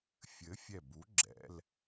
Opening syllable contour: rising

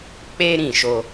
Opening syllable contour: high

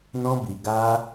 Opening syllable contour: high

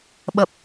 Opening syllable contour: low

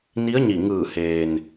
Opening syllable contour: rising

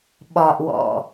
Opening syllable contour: low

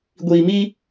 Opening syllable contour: low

